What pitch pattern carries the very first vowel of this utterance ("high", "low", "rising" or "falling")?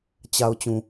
low